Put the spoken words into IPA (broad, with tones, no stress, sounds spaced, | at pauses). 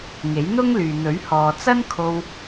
ŋ e˨˥ j n̪ ʊ˥ ŋ l yː˨ n̪ ɵ˨˥ ɥ h ɔː˨ t͡s ɐ˥ n kʰ o˧ w